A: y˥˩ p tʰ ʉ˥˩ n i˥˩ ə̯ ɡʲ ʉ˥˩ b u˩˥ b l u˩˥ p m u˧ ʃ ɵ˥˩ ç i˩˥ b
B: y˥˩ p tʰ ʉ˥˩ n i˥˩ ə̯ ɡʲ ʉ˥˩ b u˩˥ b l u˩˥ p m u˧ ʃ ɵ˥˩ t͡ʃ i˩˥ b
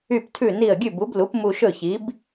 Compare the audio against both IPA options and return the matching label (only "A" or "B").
A